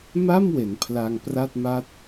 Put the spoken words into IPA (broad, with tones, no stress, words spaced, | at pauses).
ma˥˩mwe˩˦n pʰla˧ŋ pra˥˩t̚ma˥˩t̚